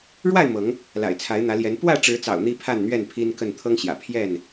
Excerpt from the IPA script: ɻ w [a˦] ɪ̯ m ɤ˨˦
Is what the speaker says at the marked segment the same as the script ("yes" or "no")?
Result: no